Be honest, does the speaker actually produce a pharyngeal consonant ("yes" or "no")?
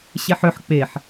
yes